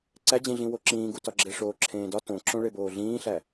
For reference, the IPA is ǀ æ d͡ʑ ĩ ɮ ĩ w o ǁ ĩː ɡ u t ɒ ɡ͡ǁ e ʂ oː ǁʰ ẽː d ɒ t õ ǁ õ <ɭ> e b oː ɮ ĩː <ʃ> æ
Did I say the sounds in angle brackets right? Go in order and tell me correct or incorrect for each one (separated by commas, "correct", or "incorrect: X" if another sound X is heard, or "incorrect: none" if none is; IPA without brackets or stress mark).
correct, incorrect: ɬ